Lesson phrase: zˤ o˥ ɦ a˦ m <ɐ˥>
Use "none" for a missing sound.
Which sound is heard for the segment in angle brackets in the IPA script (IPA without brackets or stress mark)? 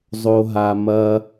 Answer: ɐ˥